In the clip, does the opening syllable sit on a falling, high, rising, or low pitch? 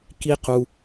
high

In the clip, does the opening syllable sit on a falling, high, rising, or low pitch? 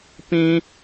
high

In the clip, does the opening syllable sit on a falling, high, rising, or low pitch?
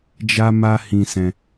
high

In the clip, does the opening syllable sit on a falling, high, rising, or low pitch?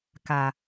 low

